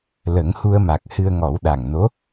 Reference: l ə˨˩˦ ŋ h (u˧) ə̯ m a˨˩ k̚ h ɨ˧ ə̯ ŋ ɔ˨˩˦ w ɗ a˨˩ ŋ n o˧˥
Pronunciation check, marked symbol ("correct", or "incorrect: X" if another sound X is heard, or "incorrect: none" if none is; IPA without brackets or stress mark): correct